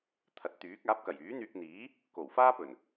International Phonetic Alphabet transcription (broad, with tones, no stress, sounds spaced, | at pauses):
t̪ʰ ɐ˨˥ t̚ t̪ yː˨˥ k̚ aː˨˥ p̚ k ɐ˨˩ j yː˨˥ n̪ yː˧ k̚ n̪ iː˨˥ | k o˨˩ w f aː˥ p ɵ˨˩ n